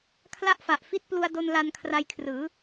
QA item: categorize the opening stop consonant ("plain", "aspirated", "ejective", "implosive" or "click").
aspirated